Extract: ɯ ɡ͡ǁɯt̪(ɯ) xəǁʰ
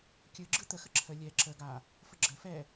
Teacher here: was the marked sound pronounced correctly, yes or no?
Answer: no